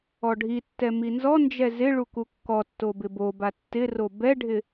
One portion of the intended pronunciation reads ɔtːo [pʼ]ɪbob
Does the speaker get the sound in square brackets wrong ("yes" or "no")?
yes